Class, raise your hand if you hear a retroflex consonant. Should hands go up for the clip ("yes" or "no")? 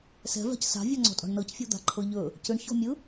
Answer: yes